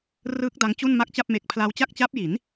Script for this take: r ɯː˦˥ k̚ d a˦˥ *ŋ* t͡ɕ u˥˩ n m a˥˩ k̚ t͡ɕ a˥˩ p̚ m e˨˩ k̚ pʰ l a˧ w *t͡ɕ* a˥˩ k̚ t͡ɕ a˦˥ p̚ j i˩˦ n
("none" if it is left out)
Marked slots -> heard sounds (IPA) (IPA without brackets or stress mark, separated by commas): ŋ, t͡ɕ